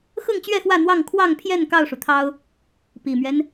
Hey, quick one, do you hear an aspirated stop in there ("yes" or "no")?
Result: yes